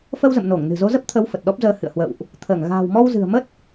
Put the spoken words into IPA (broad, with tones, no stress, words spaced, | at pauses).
fə˧wzə̰˧˨mno˧˩ŋ nɨ̤˨˩zo˨˦zə˦˥p̚t̪ʰə˨˦w fə˨˩t̚ɗɔ˦˥p̚zəː˧hɨ̰˧˨ə̯ hwə̰˧˨wʔ | t̪ʰəː˧˩ŋ ɣa̤ː˨˩wmɔ˧wzɨ̤˨˩ə̯mə˦˥t̚